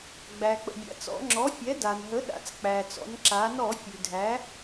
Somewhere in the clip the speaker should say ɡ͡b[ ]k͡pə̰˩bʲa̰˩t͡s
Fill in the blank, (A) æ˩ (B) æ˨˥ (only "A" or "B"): A